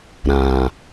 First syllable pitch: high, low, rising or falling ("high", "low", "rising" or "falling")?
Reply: low